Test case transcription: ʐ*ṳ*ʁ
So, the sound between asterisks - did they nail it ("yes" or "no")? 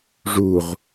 no